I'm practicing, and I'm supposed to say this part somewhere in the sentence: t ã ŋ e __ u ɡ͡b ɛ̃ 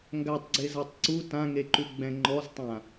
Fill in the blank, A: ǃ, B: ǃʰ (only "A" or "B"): A